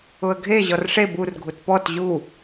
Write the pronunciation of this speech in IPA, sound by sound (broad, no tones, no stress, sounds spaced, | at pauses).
ʊ ə̯ ɡʱ e ʑ ɔ r ʂ e b u r ɡʱ u t p ɔ t ʑ u